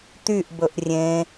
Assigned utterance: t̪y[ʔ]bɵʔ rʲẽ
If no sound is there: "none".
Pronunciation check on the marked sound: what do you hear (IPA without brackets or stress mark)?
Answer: ʔ